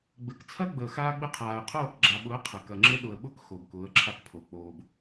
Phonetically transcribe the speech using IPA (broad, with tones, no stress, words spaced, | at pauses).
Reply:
ɡ͡bɘ˨k t͡sʰɐ˦ ɡ͡bəː˨xaː˦ɡ͡bɘ˦ qʰaː˨ə̯ qʰoː˦˨kɡ͡ǁa˨ɓʊ˨˦ə̯ qʰə˨ kɐ˨ŋ͡ǁɘ˦ ɗʊ˨ə̯ɓʊ˦k xo˨bkʊː˨˦ə̯ǁʰa˦kpʰo˨ k͡poː˨b